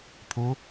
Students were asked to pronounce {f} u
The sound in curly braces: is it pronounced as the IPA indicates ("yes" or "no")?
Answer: no